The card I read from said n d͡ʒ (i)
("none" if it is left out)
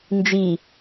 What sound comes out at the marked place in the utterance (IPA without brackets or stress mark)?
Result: i